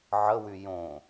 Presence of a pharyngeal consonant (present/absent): present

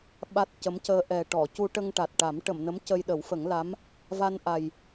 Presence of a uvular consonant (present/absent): absent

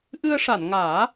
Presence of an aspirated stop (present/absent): absent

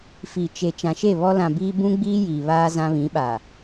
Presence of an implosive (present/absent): present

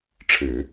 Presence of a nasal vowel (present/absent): absent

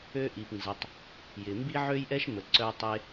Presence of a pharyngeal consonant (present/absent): present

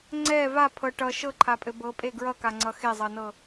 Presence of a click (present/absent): present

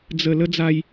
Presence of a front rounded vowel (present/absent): absent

